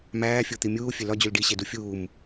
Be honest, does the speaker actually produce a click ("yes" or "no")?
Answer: no